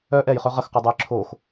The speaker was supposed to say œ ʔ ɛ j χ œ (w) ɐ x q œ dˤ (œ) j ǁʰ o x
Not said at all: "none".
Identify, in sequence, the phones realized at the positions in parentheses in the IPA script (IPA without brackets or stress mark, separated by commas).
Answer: ʁ, ɛ